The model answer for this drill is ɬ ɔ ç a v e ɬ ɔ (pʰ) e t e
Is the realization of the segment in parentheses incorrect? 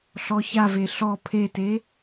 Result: no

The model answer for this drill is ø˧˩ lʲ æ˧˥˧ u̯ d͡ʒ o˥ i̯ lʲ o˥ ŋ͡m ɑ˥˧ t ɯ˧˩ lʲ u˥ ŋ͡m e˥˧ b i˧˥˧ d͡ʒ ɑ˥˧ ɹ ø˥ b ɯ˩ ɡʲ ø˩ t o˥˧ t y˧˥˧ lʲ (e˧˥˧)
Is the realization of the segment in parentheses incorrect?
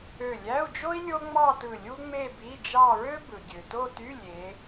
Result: yes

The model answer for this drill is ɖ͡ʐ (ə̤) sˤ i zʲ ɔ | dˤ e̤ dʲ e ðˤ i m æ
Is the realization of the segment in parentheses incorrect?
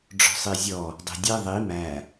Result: yes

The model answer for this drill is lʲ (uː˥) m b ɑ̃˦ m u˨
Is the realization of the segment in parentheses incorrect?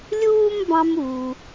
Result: no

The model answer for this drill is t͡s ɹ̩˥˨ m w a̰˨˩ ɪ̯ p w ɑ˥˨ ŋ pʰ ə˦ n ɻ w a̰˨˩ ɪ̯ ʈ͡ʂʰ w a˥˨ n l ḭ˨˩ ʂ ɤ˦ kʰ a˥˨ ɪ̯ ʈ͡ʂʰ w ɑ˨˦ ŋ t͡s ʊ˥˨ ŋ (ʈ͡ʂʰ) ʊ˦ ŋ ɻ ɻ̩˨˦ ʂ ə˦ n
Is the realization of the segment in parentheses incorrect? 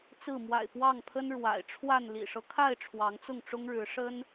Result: yes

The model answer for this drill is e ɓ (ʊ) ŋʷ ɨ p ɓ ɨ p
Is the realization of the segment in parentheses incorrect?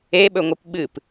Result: yes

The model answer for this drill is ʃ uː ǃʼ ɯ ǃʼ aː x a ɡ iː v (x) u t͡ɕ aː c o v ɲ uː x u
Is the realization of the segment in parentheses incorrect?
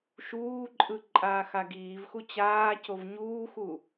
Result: no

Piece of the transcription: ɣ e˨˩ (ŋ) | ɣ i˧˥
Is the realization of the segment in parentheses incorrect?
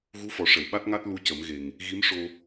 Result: no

